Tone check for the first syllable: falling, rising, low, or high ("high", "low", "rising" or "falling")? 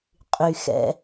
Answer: low